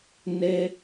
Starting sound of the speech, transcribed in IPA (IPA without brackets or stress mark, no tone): n